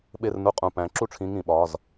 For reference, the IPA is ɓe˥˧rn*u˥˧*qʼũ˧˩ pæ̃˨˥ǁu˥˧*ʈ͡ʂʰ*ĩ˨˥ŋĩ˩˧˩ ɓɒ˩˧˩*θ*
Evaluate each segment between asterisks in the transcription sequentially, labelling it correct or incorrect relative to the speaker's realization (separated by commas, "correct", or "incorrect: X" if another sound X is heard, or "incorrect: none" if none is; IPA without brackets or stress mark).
correct, correct, incorrect: z